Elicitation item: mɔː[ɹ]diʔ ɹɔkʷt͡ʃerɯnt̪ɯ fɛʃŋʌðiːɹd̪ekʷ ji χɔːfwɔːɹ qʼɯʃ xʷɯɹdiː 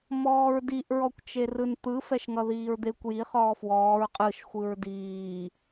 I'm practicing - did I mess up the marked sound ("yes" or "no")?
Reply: no